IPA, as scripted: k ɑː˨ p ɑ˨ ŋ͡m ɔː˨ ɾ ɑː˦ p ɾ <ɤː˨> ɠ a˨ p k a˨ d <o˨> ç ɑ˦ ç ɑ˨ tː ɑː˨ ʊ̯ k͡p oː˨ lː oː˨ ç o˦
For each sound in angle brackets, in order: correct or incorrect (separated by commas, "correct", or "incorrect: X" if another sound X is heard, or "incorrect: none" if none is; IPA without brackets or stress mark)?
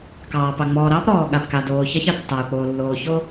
incorrect: ɔː˨, incorrect: oː˨